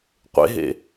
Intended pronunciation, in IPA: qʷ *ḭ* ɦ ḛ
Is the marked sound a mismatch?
yes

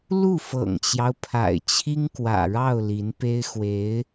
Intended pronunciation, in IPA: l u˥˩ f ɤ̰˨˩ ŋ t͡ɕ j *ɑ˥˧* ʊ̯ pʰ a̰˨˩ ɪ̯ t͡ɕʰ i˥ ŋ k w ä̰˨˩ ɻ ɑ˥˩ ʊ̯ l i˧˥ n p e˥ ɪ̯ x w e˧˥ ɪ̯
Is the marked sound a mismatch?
yes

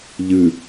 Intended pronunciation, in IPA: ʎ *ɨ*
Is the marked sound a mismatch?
no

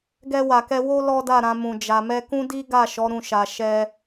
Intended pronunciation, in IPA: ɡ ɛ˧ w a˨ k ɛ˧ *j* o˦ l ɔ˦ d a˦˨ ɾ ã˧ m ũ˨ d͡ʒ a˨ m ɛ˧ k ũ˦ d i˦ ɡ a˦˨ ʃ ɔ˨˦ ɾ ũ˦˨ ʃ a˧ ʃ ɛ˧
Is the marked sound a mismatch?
yes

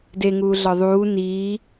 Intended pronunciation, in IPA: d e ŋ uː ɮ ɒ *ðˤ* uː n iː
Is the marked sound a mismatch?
no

